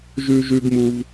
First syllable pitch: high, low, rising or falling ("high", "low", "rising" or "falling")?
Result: high